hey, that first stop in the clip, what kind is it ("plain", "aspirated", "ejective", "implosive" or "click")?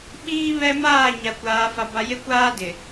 implosive